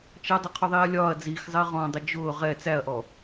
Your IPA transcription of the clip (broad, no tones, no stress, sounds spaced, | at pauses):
t͡ʃ ʌ dˤ ʊ qʰ ʊ ðˤ iː ɐ̯ lʲ ɒː ɐ̯ d͡z iː x zˤ ɪː ʁ ɔ̃ dˤ ə d͡ʒ ʊː ʁ ɛ t͡s æ ɐ̯ ʔ ɔ